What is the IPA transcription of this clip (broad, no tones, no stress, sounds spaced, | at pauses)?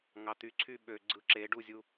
ŋ ɑ t̪ y ǀʰ y ɓ ø ɡ͡ǀ ɯ ǁ e ɖ u zʲ u